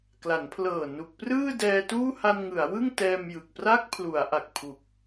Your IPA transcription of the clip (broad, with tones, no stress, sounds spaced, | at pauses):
k l a˩˦ n pʰ l ɤː˨˩ n u˨˩ k̚ p r ɯː˥˩ d ɛː˧ t uː˥˩ h a˧ n ŋ ɯ˩˦ a̯ w ɯ˥˩ ŋ t ɛː˧ m j ɯ˨˩ k̚ p r a˦˥ k̚ pʰ l u˩˦ a̯ ʔ a˨˩ k̚ pʰ u˨˩ k̚